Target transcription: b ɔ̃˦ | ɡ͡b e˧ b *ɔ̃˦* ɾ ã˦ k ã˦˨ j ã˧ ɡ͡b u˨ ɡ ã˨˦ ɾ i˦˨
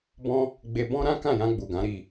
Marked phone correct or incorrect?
correct